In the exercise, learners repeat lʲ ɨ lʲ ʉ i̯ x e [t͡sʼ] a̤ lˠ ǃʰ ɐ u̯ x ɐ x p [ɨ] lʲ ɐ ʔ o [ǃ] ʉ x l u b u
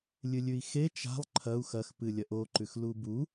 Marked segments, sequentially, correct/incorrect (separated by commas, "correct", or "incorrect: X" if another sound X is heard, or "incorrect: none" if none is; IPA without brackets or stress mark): incorrect: t͡ʃ, correct, correct